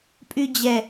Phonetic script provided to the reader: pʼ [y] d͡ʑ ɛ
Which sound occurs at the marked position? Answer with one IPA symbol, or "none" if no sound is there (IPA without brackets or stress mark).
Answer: y